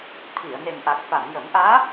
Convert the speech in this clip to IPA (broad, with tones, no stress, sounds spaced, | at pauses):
t̪ʰ i˨˩˨ ə̯ n e˨˩ n ʔ a˨˩ k̚ f a˨˩˨ m j ə˨˩˦ m ʔ aː˧˥